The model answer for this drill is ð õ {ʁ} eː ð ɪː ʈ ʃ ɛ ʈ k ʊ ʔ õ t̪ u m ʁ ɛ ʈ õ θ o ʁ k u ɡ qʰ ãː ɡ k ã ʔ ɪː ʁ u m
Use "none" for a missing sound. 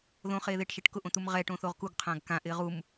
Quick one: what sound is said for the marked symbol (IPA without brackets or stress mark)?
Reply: χ